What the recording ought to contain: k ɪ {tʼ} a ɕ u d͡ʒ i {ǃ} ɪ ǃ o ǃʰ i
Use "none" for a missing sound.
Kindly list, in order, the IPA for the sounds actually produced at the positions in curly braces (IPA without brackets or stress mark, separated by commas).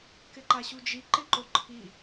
ǃ, ǃ